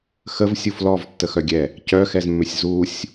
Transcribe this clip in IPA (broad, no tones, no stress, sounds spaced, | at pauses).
x ə v sʲ u f l ɔ v tː ə x œ ɡʲ ɛ | c œ x ɛ z mː ʏ sʲ z u sʲ